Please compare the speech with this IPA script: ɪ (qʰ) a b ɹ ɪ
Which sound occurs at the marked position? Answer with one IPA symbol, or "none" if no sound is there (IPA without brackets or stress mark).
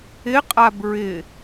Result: qʼ